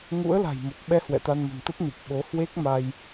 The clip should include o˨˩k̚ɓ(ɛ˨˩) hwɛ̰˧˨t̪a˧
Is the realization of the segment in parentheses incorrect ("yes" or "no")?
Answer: yes